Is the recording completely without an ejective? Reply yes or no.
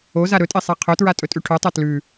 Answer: no